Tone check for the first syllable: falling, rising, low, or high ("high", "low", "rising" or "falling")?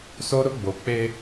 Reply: high